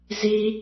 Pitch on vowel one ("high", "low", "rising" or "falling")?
high